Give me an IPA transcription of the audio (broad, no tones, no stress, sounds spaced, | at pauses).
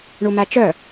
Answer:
ɳ u m æ t͡ʃ œ